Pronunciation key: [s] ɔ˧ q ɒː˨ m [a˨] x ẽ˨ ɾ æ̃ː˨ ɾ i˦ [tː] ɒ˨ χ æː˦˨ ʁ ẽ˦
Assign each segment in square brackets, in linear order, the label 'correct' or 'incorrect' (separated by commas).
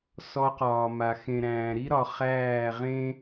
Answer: correct, correct, incorrect